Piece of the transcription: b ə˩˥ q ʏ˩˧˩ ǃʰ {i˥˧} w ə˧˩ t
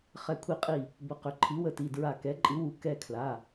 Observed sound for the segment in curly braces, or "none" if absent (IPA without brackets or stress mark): i˩˥